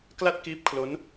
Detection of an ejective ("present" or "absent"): absent